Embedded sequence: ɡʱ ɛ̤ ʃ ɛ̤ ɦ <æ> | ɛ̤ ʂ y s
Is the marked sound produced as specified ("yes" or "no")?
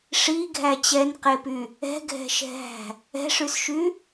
no